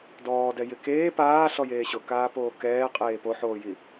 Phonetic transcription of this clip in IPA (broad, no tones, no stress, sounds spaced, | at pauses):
d ɔː d ɛ j ɪ k eː p aː ɬ ɔ j eː ɕ ʊ k aː p oː k ɛː qʼ eː p o ħ oː j i